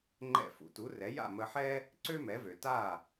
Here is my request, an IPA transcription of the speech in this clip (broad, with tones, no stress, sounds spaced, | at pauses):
ŋ͡ǃ ɛ̰˥˩ f ṵ˩ t u˩˥ r ɛ˩˥ j a̰˥˩ m ə˧ ħ ɛ˥ | ǀ ø˥ m ɛ˩˥ v ø˩ t a˥˩